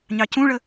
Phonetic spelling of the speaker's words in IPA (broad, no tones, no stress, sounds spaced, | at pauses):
ɲ ɑ c ũ ɭ ə